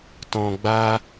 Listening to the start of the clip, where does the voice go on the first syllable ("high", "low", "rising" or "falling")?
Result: low